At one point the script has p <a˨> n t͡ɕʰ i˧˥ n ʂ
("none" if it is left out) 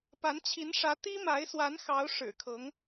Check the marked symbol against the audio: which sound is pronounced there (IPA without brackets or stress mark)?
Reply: a˧˥